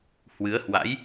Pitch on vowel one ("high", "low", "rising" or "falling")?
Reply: rising